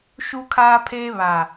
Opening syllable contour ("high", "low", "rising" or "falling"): high